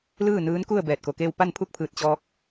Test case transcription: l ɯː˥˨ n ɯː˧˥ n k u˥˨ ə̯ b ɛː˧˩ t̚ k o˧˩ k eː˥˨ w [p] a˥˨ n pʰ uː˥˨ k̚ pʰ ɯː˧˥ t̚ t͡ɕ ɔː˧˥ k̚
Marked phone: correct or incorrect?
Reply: correct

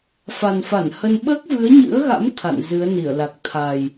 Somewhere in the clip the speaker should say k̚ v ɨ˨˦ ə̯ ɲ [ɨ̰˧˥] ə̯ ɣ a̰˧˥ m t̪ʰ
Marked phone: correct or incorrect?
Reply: correct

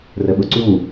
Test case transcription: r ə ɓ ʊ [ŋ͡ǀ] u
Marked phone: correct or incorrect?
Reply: incorrect: ǀ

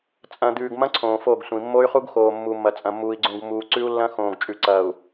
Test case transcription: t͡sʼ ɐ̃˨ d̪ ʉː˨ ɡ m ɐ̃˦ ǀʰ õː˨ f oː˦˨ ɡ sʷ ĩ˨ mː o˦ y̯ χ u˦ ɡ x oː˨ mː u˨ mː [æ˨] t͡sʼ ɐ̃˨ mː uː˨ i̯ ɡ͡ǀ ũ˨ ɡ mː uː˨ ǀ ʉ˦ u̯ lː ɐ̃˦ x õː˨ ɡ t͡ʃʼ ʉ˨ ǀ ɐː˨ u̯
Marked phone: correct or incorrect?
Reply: incorrect: ɐ˨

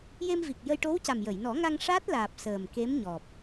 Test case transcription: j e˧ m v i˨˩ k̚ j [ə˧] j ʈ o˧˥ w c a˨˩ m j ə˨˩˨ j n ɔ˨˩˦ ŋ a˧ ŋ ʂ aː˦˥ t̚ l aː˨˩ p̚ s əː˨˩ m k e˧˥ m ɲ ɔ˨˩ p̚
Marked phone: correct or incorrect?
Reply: correct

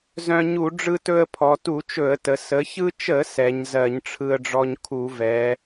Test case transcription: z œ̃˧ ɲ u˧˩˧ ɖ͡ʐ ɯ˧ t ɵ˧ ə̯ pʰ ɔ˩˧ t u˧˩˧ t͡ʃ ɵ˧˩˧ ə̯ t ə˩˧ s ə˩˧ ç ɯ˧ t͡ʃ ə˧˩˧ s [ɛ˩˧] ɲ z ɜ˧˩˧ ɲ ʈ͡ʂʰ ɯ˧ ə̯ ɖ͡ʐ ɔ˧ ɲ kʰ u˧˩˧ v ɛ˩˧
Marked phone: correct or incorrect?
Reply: correct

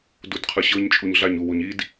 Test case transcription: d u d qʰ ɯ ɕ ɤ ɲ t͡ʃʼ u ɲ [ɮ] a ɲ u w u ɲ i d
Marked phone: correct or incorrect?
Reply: correct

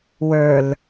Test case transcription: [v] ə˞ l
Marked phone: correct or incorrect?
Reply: incorrect: w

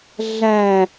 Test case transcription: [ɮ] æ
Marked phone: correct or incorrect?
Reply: correct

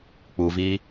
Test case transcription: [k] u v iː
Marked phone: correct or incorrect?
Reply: incorrect: k͡p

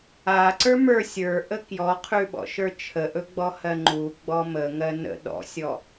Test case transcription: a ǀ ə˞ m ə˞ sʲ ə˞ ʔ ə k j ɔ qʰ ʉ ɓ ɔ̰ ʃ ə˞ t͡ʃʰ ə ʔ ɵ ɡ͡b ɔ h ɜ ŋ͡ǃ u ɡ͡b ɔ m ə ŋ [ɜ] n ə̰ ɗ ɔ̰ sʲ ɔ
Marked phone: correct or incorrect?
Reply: correct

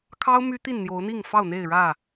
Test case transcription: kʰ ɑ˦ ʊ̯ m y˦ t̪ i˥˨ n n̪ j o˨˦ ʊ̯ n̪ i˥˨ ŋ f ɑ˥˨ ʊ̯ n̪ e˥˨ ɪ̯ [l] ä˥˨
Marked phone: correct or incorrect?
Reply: incorrect: ɻ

